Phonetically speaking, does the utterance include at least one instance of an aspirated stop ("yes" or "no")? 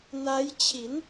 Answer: yes